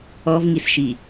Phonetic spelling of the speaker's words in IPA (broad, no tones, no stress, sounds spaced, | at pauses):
ɔ v ŋ i s ʃ i